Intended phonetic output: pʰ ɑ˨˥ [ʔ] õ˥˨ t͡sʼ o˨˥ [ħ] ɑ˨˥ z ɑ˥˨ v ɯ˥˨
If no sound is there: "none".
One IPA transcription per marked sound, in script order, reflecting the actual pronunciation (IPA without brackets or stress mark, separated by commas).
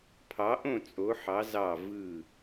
ʔ, ħ